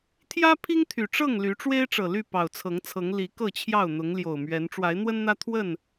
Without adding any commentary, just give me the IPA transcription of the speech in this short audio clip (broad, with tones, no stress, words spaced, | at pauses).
t̪ʰjä˦ pʰi˦ŋ t̪ʰy˨˩ ʈ͡ʂɤ˥˨ŋ ly˨˦ʈ͡ʂwe˦ɪ̯ʈ͡ʂɤ˨˩ly˥˨ pɑ˨˩ʊ̯t͡sʰɤ˨˦ŋt͡sʰɤ˨˦ŋ li˨˦kɤ˥˨t͡ɕʰjɑ˥˨ʊ̯ n̪ʊ˨˦ŋljo˨˩ʊ̯mɥɛ˨˦n ʈ͡ʂwa˨˦ɪ̯n̪wə˦nn̪ä˦ t̪ʰwə˥˨n